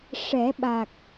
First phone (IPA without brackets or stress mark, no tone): ʂ